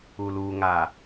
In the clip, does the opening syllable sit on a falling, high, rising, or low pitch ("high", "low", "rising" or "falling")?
low